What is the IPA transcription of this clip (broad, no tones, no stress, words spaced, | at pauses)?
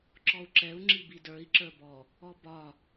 ǁɔu̯ǁɛu̯ ŋ͡ǁibidə˞i̯ ǁə˞bɔ | ɔbɒ